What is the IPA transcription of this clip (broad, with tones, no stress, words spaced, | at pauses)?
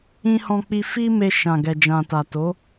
ĩ˧hɔ̃˧k͡pi˧ fi˧ me˧ʃã˨ ɡɛ˨d͡ʒã˨ta˨ to˨˦